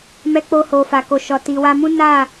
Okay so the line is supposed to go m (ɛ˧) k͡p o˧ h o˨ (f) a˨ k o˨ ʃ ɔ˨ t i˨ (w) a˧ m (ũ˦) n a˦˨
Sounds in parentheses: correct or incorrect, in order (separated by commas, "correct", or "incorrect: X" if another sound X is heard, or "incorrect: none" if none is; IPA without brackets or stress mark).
correct, correct, correct, correct